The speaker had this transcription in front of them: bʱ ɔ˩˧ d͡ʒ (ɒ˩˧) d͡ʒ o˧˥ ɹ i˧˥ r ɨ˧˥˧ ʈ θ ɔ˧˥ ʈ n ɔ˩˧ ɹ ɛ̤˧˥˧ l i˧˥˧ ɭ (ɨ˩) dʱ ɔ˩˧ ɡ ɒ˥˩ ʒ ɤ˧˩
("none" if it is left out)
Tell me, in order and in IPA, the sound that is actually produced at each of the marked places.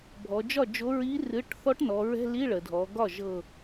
ɒ˥˩, ə˩

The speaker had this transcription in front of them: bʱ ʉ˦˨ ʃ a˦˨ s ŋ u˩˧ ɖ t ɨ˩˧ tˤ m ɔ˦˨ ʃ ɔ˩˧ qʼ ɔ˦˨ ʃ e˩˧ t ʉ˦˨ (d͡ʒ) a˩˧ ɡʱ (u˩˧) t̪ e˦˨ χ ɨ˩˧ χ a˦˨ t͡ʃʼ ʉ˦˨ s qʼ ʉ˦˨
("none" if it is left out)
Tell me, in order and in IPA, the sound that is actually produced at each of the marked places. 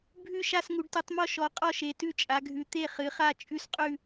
t͡ʃʼ, ʉ˩˧

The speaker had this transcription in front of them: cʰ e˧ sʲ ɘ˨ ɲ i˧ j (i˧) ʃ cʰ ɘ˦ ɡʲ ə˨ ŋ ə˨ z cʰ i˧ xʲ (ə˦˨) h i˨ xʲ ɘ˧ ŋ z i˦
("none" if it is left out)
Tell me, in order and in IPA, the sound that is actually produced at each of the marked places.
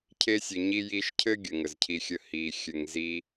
i˧, ə˦˨

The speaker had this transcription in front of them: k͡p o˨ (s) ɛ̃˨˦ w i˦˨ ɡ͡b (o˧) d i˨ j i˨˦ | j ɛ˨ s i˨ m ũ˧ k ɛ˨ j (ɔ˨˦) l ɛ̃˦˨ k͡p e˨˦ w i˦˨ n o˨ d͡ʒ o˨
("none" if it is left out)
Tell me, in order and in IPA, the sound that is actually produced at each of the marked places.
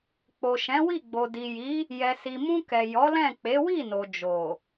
ʃ, o˨, ɔ˨˦

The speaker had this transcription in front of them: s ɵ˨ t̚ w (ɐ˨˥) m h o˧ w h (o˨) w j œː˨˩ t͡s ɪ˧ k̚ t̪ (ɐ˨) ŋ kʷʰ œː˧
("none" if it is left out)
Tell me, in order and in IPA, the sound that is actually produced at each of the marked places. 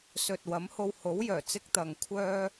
ɐ˨˥, o˨˥, ɐ˨

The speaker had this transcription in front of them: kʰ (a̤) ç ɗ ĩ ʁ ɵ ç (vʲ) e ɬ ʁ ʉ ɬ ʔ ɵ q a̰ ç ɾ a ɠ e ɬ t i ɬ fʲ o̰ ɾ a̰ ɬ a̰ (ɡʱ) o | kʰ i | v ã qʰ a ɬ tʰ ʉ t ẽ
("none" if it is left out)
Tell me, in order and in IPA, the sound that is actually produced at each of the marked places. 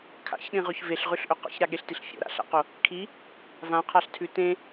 a̰, v, q

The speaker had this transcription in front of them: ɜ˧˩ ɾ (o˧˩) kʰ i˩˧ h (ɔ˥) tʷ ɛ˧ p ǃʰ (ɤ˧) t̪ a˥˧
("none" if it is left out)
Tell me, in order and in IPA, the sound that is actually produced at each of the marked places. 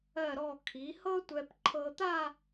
ɔ˧˩, ɤ˥, ɤ˧

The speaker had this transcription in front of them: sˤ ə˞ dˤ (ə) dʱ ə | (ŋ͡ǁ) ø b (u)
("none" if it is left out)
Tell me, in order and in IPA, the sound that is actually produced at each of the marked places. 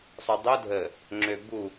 ə, ŋ͡ǁ, u

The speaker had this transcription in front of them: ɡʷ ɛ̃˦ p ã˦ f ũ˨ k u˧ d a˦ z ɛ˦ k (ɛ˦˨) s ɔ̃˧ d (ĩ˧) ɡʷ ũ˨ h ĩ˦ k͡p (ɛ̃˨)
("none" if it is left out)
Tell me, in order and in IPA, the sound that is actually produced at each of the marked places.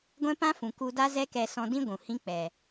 ɛ˧, ĩ˦, ɛ˨

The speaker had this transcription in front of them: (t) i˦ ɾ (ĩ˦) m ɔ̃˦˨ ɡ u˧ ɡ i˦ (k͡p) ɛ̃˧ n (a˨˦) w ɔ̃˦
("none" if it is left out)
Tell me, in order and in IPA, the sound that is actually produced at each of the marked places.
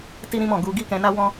t, ĩ˦, k, a˦

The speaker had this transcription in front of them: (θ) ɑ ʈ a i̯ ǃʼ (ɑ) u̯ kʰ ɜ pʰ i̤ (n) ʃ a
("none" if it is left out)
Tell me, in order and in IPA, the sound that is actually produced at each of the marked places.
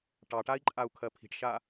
ʈ, a, ʈ

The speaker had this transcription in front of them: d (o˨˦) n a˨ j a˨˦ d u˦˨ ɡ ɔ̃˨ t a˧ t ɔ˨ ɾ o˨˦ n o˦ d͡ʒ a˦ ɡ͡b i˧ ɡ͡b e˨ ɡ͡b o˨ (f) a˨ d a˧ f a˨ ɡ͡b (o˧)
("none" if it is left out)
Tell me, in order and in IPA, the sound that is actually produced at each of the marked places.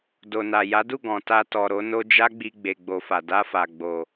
o˨, f, o˨

